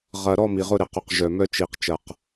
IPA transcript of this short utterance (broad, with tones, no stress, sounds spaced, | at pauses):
ʁ ɐ˨ ɾ ɔ˦˨ m i˨ ʁ ʊ˦ ɾ ɪ˨ q ʊ˨ q ʒ œ˨ m œ˦ t͡ʃ i˨ q t͡ʃ ɐ˨ q